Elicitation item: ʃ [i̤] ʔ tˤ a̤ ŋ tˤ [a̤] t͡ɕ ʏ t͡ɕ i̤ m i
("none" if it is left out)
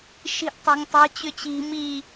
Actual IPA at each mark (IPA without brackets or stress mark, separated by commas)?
i̤, a̤